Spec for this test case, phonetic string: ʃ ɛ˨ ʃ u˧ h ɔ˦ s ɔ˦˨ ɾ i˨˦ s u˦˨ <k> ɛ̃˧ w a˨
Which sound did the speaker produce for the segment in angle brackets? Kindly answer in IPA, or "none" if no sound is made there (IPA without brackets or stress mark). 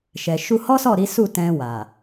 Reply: t